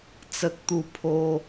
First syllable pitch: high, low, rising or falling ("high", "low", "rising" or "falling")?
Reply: high